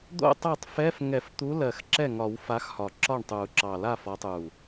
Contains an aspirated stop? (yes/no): no